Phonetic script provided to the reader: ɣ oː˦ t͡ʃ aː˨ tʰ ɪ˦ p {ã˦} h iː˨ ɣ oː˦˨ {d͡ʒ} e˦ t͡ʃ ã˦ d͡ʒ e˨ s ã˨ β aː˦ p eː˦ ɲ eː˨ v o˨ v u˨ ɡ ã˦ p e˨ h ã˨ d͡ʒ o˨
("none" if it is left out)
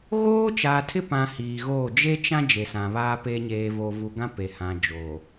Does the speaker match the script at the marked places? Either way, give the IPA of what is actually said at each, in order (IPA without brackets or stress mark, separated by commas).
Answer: ã˨, d͡ʒ